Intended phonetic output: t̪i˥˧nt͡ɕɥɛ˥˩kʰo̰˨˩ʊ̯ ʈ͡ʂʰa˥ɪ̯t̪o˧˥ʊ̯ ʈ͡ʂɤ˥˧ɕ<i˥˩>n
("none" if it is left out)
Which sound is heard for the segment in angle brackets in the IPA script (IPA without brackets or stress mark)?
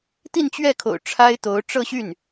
y˥˩